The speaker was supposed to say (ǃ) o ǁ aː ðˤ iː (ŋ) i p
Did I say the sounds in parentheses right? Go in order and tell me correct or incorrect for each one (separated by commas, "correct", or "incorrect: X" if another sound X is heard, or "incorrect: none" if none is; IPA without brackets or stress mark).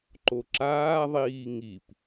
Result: correct, correct